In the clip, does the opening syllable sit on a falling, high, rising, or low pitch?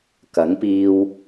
rising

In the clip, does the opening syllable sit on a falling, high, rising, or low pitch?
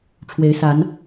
rising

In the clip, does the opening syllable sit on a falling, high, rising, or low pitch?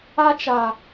high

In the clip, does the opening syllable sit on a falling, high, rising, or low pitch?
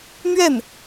falling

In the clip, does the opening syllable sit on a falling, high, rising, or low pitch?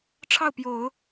falling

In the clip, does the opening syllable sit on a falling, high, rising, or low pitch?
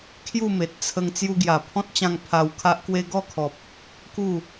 falling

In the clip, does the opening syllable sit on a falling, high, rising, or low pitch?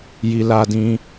low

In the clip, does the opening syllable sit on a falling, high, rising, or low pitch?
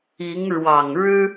rising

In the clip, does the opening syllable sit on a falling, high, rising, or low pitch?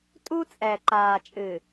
high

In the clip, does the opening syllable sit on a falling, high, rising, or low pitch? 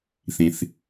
low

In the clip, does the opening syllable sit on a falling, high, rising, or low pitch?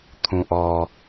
low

